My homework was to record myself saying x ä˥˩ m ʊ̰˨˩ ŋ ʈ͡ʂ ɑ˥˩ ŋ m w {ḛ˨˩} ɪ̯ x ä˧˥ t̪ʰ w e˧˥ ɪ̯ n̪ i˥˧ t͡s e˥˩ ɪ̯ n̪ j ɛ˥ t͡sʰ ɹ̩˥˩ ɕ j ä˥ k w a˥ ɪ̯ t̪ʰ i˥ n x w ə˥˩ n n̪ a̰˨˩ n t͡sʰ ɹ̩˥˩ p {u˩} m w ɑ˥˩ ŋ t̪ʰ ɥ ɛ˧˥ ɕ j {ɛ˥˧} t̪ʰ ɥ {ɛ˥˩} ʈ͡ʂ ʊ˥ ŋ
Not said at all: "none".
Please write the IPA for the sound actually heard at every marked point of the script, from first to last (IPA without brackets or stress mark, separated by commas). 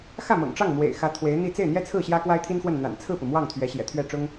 ḛ˨˩, u˩, ɛ̰˨˩, ɛ˥˩